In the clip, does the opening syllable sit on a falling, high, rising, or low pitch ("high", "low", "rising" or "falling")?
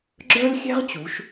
high